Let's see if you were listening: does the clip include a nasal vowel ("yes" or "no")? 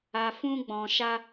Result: yes